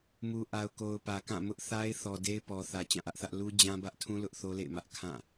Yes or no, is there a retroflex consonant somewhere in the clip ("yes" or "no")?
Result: no